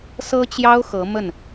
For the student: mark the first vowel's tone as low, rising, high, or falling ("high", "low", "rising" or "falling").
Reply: high